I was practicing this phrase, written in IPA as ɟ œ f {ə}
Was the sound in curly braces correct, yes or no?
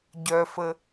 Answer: yes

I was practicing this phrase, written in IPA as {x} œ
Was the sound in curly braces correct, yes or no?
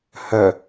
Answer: no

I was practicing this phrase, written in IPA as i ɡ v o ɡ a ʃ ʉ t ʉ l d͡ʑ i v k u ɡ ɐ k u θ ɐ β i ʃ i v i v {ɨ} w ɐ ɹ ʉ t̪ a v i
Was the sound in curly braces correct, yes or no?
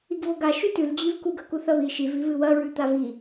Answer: yes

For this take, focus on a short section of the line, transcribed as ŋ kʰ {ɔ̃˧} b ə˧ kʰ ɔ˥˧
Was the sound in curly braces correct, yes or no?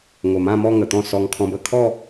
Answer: yes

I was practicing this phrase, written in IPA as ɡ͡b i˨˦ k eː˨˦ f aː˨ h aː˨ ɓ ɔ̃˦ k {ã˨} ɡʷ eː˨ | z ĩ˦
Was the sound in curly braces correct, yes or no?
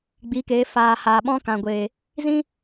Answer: yes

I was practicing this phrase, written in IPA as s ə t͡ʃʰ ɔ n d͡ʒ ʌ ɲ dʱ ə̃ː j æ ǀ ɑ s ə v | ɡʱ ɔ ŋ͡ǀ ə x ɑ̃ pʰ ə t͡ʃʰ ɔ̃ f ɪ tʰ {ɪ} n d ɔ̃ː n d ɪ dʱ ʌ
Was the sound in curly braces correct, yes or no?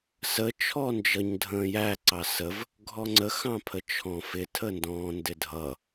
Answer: no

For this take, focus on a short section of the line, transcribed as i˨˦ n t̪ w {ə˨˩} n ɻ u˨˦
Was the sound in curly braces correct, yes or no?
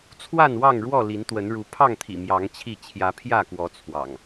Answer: no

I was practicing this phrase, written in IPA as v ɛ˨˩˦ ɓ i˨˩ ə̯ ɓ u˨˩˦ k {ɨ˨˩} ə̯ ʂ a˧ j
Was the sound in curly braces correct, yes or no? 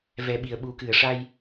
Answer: yes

